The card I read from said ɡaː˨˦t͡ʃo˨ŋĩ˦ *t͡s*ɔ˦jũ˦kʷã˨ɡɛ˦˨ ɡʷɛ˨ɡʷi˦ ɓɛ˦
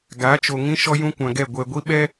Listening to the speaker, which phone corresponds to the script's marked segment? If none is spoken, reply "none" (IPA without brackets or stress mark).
ʃ